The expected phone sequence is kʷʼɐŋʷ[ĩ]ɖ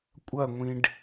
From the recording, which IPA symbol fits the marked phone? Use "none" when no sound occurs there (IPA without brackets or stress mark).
ĩ